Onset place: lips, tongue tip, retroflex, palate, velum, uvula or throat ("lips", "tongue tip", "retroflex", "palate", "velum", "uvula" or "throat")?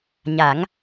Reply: palate